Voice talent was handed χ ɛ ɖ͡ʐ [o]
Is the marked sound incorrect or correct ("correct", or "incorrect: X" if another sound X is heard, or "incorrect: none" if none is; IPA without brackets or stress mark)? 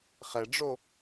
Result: correct